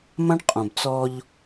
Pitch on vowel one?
high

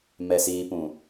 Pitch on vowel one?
low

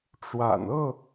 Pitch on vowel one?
low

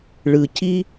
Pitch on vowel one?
low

